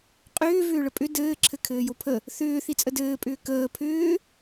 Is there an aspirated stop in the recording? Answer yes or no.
yes